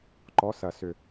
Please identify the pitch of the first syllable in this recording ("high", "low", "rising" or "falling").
rising